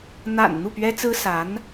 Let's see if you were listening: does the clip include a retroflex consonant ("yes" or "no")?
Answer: no